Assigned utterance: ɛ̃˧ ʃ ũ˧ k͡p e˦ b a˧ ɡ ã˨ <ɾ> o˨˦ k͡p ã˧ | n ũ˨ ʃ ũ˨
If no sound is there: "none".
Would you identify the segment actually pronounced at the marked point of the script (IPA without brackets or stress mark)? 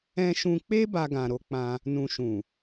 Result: ɾ